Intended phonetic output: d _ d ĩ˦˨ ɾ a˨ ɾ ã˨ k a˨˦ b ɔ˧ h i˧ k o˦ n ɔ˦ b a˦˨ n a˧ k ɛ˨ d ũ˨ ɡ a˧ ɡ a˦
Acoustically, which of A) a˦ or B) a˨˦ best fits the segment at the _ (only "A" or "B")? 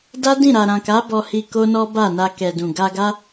A